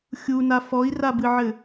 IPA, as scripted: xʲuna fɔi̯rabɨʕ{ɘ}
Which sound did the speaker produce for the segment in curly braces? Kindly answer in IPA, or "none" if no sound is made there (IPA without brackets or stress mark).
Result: ɘ